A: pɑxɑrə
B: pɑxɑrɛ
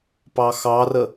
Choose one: A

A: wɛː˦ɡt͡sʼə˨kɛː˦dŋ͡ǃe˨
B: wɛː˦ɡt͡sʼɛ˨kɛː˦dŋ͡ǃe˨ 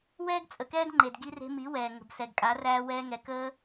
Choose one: A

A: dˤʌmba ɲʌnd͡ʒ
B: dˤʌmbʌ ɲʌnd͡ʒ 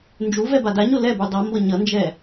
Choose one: B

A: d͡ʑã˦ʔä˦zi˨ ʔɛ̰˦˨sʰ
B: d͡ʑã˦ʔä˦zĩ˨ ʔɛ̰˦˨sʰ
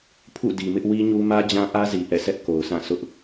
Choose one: A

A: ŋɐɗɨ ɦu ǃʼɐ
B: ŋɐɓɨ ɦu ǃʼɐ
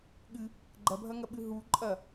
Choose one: B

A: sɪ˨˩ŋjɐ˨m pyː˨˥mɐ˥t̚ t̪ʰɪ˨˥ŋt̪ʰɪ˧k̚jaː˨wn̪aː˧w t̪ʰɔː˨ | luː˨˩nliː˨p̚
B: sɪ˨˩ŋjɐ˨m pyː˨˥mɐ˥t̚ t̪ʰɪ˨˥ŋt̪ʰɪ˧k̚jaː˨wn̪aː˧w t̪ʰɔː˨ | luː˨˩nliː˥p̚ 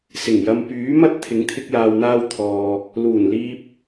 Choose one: A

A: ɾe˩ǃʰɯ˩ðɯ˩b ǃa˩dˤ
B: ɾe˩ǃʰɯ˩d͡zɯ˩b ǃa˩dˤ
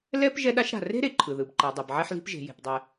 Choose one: A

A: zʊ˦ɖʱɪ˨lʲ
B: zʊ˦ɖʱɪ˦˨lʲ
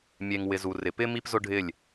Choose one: B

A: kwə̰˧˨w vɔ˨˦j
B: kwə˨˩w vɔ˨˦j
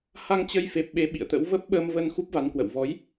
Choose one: A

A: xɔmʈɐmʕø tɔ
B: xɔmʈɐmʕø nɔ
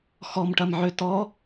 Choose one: A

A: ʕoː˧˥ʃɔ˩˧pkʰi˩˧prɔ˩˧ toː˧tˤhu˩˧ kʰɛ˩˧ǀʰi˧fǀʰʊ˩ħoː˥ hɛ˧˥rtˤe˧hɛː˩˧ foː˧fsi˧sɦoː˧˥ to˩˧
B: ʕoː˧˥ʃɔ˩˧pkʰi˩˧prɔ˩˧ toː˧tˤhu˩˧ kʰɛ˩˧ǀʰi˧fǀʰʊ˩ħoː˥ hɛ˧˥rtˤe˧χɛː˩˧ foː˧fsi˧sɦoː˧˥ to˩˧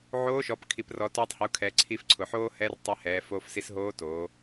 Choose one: A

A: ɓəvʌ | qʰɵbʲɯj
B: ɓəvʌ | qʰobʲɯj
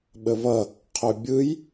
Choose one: A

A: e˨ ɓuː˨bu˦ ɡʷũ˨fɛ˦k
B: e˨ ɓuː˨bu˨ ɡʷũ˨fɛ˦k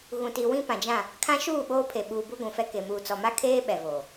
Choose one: A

